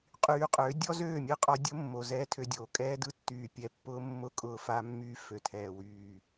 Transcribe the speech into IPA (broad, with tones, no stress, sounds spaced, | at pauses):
qʼ yː˧ qʼ ø˨˦ dʲ ɔ˦ z øː˦˨ mʲ ɯ˦ qʼ ɔ˧ dʲ ʊ˦ mː o˨ z ɛː˦ tʰ ø˧ dʲ oː˨ kʼ ɛː˦ d ɯ˦ tː yː˨ pʲ ɛ˨ pː ʊː˧ mː ʊ˧ kʼ ʊː˨ f a˧ mː yː˧ f ø˨ tʰ ɛː˨ w yː˨